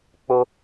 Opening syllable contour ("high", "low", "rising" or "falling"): high